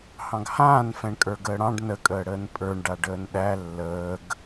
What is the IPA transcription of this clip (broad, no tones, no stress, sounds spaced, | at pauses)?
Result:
h ɑ̃ ɡ h ãː n f ɛ̃ ɳ kʼ ə˞ ɡ əː ɽ ɑ̃ ɖ n ə kʼ əː ɽ əː n pʼ ə˞ ɳ ɖ a ɖ əː n ɗ æ lː əː ɡ